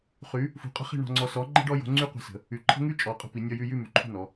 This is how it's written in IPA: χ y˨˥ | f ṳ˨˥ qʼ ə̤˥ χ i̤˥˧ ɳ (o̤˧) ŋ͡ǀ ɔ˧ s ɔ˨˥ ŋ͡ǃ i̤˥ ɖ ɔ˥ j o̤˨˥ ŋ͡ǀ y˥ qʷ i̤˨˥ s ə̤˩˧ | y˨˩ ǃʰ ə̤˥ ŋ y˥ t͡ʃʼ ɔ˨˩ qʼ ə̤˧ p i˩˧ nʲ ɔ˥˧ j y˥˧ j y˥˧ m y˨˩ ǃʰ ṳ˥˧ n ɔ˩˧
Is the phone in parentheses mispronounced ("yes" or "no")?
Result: yes